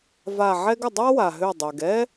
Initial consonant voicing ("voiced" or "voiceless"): voiced